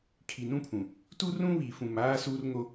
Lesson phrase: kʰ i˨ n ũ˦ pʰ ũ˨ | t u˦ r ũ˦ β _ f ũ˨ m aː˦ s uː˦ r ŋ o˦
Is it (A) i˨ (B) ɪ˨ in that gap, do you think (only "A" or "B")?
A